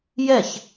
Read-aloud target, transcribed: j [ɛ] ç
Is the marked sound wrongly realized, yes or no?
no